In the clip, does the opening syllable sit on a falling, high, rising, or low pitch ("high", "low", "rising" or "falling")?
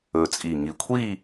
low